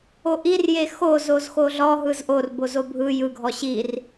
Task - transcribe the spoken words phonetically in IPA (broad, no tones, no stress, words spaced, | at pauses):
oʔirje xozoz xoɮɔɦɯz ʔorbozo bʱɯ jɯɡʱɔ ɕir